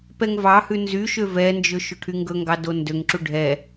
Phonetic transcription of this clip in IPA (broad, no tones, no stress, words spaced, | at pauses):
pɛŋvɑhʉ nzyʃø vɛnd͡ʒɵ ʃoʈʰyŋɡɵŋɡɑ dondøŋǁu ɖʱɛ